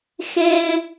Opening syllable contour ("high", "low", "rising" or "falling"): high